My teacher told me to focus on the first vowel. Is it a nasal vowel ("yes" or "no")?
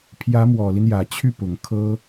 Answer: no